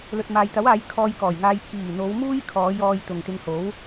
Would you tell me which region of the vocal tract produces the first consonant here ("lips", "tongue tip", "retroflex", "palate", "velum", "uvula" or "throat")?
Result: tongue tip